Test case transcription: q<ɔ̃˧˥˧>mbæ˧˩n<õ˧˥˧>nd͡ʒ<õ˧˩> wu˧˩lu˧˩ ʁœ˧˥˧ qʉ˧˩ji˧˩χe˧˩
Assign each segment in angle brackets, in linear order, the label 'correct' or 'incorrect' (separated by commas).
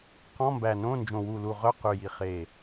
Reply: correct, correct, correct